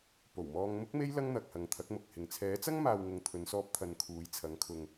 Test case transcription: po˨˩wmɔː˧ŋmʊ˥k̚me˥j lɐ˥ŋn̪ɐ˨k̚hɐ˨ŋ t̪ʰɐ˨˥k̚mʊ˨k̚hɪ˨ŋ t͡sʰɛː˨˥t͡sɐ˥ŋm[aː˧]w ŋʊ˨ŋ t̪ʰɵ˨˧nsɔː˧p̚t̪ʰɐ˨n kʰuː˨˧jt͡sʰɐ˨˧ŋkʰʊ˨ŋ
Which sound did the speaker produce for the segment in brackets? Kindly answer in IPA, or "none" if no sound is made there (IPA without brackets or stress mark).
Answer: aː˨